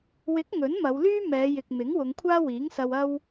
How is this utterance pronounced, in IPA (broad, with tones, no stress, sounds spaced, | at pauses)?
w ɪ˨˥ k̚ ŋ ɵ˨˥ n m ɐ˨˧ w l yː˥ m ɛː˨˧ j ɪ˨ k̚ m ɪ˨˥ ŋ w ʊ˨˧ ŋ kʷʰ aː˥ w iː˨˥ ŋ s ɐ˧ w ɐ˥ w